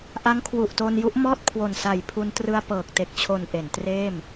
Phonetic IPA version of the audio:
ʔ a˦˥ ŋ kʰ w u˨˩ ʔ t o˧ n j u˦˥ ʔ m ɔː˥˩ t̚ kʰ w o˨˩ n s a˨˩ j pʰ u˧ n t r ɯ˧ a̯ p ɤː˨˩ k̚ t e˨˩ k̚ t͡ɕʰ o˨˩ n ʔ e˩˦ n t r eː˥˩ m

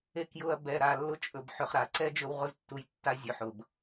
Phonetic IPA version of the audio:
e˧ k j ʊ˧ ɐ̯ b ɛ˧ ɾ a˧ lː ʊ˦ t͡ʃʼ ɵ˨ b ħ ɵ˨ χ ɾ a˨ ǀ ɛ˦ d͡ʒ ɵ˧ w ʁ ʊ˧ z tː u˨ j tː a˨ zʲ ɵ˨ ħ ʊ˨ b

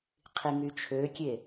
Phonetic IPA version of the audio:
qʰ i ŋ y t͡ʃʰ ø kʲ e

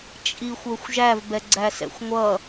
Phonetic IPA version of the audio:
t͡ʃʼ i xʷ ə˞ xʷ ʒ æ v b ɛ ɡ͡ǀ æ s ɛ̰ xʷ ŋʷ ʌ

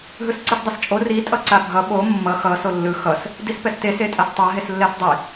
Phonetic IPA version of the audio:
ɦ ɯ s ǀ ɯ s dˤ ʌ s t͡ʃʼ o r i tʼ ʌ ǀ a bʱ ʌ ɓ o mː ʌ x ʌ s o lː ɯ x ʌ s | d i s p ɛ s t e s e tʼ a s tˤ a ɦ e s lː ɛ s dˤ i

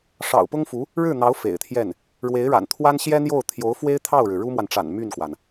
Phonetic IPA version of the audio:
ʂ ɑ̰˨˩ ʊ̯ p ʊ˥ ŋ f u˧˥ | ɻ ɻ̩˥˩ n̪ ɑ˧˥ ʊ̯ f ḛ˨˩ ɪ̯ t̪ʰ j ɛ˥˩ n | ɻ w e˧˥ ɪ̯ ɻ a̰˨˩ n t̪ʰ w a˥ n ɕ j ɛ˥ n̪ j o˥˩ ʊ̯ t̪ʰ j o˧˥ ʊ̯ f w e˥ ɪ̯ t̪ʰ ɑ˥˩ ʊ̯ ɻ ɻ̩˩ ɻ u˥ m w a˨ n ʈ͡ʂ a̰˨˩ n m y˥˩ n k w a˩ n

